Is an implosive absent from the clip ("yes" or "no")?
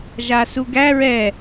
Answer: yes